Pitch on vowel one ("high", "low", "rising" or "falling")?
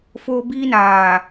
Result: high